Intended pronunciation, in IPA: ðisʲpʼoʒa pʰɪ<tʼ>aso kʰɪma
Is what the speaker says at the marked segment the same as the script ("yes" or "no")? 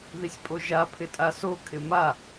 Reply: yes